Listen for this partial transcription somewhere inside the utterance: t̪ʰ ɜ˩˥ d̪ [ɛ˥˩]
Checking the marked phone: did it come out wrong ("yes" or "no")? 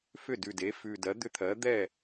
no